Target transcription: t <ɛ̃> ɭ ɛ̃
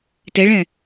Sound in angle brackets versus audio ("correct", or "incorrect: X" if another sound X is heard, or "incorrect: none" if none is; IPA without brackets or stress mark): incorrect: ɛ